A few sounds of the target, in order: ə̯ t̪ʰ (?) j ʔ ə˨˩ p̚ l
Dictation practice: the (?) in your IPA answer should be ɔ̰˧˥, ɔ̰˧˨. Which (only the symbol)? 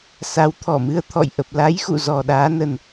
ɔ̰˧˨